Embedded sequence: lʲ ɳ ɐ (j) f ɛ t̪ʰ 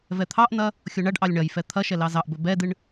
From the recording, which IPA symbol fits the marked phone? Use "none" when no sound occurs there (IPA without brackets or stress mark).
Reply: j